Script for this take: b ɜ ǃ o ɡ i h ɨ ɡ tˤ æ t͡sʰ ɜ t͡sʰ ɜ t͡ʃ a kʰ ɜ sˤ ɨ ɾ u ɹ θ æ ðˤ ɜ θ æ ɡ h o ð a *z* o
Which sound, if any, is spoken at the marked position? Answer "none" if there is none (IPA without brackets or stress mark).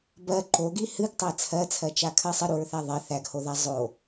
zˤ